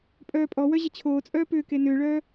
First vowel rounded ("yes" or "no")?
yes